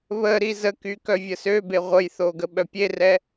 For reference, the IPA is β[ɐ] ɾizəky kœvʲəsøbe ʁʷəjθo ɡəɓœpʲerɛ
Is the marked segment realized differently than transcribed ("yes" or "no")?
yes